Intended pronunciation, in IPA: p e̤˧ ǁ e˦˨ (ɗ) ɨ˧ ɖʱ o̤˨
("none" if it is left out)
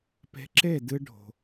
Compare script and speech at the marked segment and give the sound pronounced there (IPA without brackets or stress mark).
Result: d